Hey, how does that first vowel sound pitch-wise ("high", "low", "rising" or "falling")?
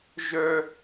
high